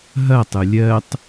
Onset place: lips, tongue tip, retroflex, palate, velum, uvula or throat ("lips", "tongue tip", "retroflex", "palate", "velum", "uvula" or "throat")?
throat